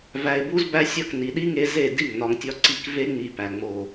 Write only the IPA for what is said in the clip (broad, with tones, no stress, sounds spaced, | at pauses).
v æ˧ ɪ̯ b u˦ z b æ˦ sʲ ɒ˦˨ k n i˨ ɗ i˦ ŋ e˧ z e˦˨ d i˦˨ ŋ n ɒ˧ ŋ tʲ ɒ˦ ǀ i˧ k v e˦ ŋ͡m i˧ p æ˨ ŋ͡m o˨